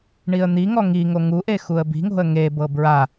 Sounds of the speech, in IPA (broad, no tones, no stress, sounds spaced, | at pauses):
ɳ i ə̯ n̪ i ŋ ɔ ŋ i ŋ o ŋ u ʔ e x u ə̯ b i̤ ŋ o̤ ə̯ ŋ e b ɤ b ɹ a